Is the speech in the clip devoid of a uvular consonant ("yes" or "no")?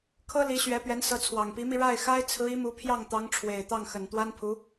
yes